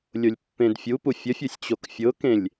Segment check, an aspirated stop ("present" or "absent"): absent